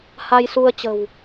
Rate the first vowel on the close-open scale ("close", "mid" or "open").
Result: open